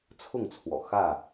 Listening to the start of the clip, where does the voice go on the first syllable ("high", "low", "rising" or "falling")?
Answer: falling